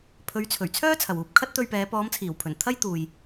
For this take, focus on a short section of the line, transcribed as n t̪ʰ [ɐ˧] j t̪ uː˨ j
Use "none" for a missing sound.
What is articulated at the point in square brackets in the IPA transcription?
ɐ˥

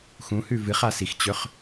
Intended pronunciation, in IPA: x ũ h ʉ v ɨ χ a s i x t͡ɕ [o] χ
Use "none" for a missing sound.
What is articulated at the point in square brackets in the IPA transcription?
ɵ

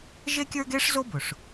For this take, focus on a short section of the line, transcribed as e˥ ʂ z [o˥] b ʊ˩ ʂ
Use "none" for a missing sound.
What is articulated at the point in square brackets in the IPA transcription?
o˥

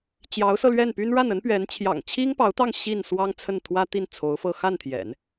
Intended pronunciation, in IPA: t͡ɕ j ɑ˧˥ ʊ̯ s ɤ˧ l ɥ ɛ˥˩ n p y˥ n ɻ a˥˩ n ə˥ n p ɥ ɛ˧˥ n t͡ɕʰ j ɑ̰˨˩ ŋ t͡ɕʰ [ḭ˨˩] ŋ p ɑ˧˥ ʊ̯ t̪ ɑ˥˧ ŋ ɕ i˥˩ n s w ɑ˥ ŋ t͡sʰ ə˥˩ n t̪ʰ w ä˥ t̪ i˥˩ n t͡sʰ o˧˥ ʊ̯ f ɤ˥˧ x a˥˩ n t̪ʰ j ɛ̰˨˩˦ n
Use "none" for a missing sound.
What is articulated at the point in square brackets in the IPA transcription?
i˥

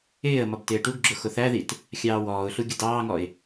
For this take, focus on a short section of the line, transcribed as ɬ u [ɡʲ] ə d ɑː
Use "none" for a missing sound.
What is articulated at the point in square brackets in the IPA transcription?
ɡʲ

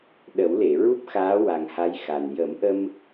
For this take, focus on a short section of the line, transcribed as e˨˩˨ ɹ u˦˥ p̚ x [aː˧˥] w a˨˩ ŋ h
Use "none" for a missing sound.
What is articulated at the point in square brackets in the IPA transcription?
aː˧˥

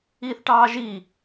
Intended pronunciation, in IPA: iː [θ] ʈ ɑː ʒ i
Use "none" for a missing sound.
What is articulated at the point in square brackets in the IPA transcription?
θ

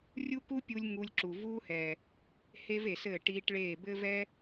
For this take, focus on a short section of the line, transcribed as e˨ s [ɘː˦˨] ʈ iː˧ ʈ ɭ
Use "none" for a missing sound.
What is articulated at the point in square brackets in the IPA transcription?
ɘː˦˨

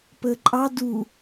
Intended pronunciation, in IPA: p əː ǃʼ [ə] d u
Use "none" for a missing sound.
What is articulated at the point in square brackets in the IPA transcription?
ɑ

